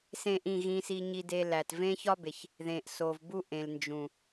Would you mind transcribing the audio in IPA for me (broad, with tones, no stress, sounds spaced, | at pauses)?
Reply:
s ẽ˦˨ ʔ ĩ˦˨ ɣ ĩ˧ s i˧ ɲ i˧ d e˧ l æ˨ t v ẽ˦ ç ɒ˦ b e˨ ç | ð ẽ˨ ʔ s o˨ v b u˦ ʔ ẽ˨ l n d͡ʒ ũ˨